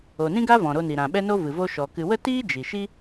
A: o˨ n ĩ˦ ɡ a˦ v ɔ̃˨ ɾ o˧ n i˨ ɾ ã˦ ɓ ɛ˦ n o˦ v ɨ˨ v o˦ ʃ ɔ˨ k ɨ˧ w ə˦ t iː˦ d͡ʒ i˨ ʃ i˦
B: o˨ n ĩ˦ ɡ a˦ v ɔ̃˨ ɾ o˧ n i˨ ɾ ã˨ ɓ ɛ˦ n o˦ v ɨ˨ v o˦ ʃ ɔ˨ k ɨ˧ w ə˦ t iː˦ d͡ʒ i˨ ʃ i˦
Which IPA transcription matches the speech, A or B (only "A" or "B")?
B